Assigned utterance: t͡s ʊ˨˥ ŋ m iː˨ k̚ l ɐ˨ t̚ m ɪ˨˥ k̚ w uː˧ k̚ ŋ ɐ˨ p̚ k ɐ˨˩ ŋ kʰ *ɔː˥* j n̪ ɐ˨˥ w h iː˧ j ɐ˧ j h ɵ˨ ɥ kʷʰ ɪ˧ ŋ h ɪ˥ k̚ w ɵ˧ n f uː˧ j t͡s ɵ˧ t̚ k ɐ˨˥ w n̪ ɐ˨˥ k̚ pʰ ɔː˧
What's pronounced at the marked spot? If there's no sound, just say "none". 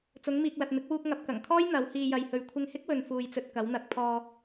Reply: ɔː˥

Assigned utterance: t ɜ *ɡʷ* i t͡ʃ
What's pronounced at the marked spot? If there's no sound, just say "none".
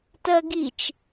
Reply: ɡ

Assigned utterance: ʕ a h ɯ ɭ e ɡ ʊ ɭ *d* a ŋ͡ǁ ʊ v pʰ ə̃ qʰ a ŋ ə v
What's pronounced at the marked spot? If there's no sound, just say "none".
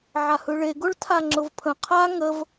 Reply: tʰ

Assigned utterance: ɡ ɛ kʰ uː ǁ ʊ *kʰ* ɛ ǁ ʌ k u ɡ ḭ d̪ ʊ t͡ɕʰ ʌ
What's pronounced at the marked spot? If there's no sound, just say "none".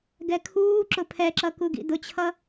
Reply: pʰ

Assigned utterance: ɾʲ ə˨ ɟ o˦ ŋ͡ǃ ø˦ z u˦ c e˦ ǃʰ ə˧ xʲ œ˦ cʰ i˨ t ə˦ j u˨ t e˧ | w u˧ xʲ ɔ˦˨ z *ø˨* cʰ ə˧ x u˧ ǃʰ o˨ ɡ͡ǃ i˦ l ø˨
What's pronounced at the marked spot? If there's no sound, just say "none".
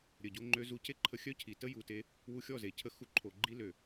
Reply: e˨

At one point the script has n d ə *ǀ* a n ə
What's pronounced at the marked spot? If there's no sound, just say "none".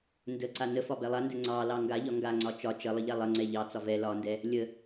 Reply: ǀ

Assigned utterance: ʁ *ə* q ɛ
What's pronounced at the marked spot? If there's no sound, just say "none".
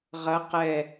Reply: ɐ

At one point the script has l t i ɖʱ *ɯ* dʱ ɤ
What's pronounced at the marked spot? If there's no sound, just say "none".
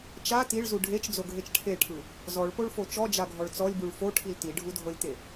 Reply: u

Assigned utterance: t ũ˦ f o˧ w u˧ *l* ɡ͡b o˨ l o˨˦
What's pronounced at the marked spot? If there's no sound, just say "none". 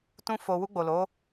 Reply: none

